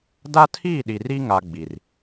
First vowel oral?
yes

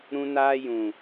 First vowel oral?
no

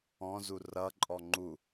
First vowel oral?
no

